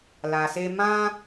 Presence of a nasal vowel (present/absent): present